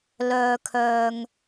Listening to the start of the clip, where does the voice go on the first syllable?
low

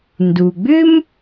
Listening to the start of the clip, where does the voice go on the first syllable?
low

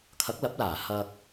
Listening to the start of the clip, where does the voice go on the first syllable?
rising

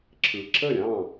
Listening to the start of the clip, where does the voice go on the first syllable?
low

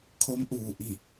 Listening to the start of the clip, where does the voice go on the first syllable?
rising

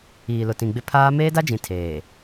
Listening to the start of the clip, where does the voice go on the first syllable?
low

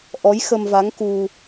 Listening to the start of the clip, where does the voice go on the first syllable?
rising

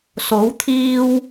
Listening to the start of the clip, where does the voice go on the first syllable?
rising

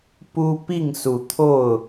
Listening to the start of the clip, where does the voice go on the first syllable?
high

